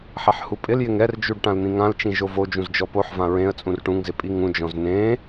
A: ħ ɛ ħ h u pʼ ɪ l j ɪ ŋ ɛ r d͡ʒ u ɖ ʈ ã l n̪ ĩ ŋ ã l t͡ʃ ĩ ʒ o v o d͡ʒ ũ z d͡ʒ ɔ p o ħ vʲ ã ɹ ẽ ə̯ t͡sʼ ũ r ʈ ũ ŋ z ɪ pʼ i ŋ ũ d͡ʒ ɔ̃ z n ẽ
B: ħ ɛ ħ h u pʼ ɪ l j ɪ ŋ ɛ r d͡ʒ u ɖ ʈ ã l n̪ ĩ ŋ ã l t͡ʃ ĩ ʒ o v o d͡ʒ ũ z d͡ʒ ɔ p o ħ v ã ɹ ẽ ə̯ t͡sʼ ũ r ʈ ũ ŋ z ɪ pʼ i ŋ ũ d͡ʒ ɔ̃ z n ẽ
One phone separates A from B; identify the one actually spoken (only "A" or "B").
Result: B